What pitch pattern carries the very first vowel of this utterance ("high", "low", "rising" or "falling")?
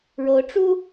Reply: rising